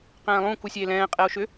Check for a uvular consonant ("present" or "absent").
present